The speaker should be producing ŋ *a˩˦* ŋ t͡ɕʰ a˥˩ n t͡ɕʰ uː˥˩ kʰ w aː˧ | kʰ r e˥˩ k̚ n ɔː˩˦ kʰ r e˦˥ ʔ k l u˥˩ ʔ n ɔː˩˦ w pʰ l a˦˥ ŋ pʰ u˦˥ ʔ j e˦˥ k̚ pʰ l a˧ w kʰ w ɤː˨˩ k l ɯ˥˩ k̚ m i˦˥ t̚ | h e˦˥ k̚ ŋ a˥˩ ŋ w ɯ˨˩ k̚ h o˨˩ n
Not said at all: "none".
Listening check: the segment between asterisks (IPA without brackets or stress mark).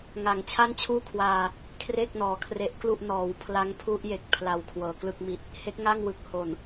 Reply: a˩˦